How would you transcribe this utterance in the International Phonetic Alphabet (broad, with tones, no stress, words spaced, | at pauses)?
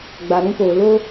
ɡ͡ba˨ɾũ˧poː˨loː˦